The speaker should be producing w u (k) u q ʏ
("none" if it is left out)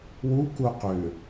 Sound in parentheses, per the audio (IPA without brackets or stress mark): k